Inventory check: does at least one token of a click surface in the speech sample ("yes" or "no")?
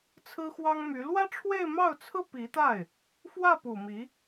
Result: no